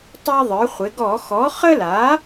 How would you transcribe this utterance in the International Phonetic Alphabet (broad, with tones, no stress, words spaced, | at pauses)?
tˤe˦ðˤə˞˩˥χʷɪ˩˥ ɡɔ˧˩˧xɔ˩˥ χə˦la˩˥